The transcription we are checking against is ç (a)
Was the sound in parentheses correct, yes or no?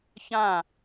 no